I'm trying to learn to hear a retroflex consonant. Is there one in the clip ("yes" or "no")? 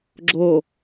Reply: no